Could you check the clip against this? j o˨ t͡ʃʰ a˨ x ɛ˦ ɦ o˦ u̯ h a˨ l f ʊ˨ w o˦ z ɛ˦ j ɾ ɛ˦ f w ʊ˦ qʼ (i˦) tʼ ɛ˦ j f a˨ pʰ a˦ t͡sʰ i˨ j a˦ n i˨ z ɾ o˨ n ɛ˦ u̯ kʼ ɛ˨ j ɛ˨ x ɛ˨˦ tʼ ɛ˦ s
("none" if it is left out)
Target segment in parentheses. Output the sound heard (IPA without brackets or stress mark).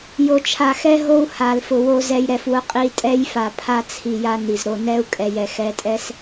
i˦